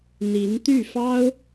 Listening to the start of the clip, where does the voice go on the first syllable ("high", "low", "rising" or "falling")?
rising